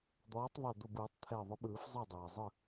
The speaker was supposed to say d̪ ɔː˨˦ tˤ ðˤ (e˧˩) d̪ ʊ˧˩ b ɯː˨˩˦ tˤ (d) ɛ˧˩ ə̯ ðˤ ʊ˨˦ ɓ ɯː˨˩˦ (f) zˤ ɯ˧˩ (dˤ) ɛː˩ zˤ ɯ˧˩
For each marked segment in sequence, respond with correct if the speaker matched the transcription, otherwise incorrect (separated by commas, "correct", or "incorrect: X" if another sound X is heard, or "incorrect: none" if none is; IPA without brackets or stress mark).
correct, incorrect: t̪ʰ, correct, correct